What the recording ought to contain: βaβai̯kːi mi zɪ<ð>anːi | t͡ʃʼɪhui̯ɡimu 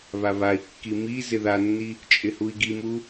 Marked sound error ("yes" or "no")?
no